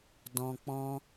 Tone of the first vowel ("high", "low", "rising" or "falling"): low